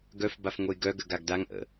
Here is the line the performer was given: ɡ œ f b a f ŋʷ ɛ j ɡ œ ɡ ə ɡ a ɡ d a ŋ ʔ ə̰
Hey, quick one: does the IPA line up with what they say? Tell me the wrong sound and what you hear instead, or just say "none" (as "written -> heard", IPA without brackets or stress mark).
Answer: none